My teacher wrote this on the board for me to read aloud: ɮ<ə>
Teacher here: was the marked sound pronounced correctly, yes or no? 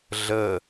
yes